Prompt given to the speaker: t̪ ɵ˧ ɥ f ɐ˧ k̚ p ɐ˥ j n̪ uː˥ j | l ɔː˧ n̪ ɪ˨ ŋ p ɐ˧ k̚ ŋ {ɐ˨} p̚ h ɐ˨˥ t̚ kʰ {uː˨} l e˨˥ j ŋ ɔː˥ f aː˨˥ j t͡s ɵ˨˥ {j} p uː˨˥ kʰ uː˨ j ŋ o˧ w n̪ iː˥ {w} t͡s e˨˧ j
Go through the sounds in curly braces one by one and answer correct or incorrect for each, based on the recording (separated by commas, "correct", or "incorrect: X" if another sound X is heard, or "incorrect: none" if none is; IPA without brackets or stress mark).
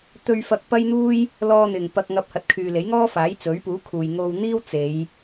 incorrect: ɐ˧, incorrect: yː˨, incorrect: ɥ, correct